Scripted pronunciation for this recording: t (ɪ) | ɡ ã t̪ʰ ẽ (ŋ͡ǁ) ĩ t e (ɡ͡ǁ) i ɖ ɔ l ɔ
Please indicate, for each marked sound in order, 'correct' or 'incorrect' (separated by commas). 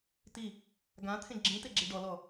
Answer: incorrect, incorrect, correct